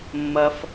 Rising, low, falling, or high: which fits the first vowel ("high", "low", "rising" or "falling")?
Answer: high